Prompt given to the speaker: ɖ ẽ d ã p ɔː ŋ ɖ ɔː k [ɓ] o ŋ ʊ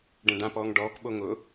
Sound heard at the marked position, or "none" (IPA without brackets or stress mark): ɓ